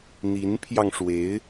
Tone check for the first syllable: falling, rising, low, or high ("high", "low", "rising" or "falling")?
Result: rising